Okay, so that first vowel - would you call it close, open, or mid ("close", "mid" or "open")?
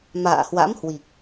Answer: open